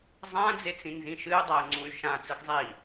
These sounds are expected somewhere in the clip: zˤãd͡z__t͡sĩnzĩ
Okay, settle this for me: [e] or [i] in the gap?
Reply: e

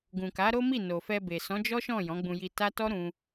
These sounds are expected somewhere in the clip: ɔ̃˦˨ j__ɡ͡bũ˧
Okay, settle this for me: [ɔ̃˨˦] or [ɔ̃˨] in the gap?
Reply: ɔ̃˨˦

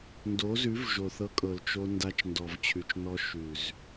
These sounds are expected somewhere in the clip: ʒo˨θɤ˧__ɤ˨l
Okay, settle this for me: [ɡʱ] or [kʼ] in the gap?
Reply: kʼ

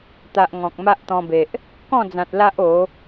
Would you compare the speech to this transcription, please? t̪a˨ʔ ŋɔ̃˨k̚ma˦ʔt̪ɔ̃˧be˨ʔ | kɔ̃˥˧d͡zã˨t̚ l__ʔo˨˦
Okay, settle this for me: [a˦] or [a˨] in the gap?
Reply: a˦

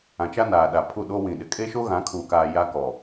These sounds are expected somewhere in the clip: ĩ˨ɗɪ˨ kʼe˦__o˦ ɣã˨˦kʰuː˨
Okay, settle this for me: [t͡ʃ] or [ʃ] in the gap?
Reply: ʃ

